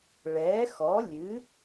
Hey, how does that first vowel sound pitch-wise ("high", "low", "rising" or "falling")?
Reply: rising